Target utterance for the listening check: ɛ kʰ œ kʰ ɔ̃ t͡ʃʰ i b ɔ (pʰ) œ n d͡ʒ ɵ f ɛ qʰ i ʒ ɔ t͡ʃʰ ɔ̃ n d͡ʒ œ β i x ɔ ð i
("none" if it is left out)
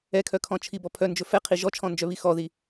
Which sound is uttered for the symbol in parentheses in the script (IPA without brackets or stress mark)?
pʰ